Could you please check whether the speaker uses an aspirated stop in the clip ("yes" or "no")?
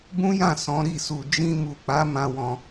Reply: no